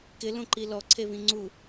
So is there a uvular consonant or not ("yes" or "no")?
no